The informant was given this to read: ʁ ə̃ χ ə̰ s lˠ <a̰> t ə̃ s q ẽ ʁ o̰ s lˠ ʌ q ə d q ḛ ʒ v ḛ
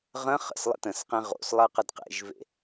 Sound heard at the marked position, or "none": ə̰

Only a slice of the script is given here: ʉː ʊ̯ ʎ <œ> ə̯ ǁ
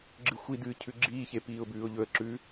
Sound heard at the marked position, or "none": ɵ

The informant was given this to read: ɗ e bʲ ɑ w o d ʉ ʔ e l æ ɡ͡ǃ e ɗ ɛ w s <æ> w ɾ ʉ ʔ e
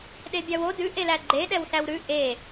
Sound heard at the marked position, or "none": æ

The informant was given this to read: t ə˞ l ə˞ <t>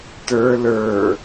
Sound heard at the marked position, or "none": none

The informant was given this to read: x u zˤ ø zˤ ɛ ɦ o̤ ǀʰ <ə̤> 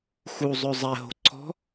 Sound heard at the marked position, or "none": ɔ̤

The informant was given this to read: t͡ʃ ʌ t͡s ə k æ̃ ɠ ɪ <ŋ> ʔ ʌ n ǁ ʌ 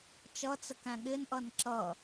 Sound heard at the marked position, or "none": n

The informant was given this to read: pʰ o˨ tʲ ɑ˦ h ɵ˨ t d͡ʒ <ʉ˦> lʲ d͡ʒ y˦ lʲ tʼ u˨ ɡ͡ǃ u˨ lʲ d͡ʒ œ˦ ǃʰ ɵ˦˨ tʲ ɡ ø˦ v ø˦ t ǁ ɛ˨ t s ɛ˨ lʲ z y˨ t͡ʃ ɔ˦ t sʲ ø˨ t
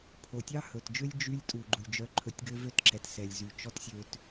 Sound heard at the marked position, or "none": ø˦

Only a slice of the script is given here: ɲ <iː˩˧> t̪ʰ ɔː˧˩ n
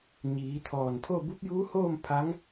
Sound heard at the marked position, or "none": iː˩˧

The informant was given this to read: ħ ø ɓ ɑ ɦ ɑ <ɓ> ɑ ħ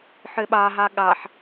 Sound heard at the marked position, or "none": ɠ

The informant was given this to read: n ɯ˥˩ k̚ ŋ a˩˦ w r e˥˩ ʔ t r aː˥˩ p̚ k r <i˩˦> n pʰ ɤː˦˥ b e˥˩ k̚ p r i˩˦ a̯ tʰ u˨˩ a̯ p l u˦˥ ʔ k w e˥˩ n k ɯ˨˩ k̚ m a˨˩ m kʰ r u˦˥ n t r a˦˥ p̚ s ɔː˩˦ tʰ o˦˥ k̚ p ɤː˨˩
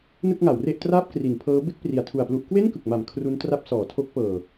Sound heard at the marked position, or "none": i˩˦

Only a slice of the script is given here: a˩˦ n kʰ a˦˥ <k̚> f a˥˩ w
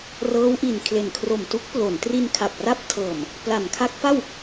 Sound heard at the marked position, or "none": k̚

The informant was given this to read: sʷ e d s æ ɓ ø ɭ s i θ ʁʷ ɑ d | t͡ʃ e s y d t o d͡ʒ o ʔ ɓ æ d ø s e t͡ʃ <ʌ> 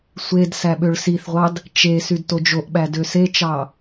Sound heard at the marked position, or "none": ɑ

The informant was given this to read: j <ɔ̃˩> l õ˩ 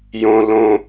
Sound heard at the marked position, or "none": õ˩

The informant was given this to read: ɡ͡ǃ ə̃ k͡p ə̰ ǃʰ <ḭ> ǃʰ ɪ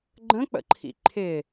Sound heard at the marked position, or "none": ḭ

